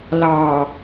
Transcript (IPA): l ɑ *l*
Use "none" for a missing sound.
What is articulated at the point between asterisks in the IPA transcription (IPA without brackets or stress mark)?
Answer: none